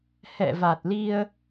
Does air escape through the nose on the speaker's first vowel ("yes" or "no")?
no